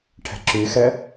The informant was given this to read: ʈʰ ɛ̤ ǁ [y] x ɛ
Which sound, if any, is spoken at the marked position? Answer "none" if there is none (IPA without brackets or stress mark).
y